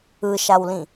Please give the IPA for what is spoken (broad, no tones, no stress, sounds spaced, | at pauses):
ɯ ʃ a w l ĩ